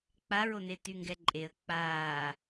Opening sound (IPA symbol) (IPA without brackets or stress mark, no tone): k͡p